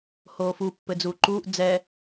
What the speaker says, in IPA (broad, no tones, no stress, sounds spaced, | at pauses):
h oː f u pː ɘ d͡z uː ǃ uː ʔ d͡z ɛ